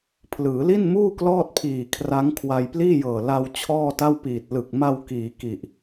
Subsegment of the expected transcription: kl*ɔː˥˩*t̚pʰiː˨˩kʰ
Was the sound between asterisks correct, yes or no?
yes